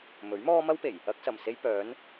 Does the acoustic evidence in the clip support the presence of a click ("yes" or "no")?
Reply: no